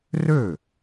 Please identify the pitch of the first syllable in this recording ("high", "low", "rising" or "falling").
falling